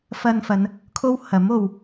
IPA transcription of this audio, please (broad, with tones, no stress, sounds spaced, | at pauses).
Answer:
f ɐ˧ n f ɐ˨˧ n | kʰ o˥ w h ɐ˨˥ m o˨ w